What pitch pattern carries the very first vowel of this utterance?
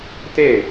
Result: falling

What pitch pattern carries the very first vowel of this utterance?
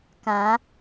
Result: rising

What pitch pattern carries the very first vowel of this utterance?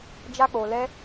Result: high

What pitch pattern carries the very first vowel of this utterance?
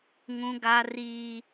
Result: high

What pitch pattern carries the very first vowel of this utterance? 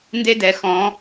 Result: high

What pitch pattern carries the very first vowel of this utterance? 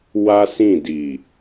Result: high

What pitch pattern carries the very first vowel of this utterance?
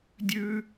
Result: high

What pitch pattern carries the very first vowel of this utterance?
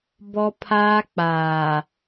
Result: high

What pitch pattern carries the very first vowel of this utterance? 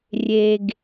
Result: low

